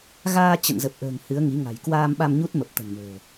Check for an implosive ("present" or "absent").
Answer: present